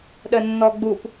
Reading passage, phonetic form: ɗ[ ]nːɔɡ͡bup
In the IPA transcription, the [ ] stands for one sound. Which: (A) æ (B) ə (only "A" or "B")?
B